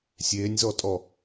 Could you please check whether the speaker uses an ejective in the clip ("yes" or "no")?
yes